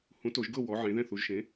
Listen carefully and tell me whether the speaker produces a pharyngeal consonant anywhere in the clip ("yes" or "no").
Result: yes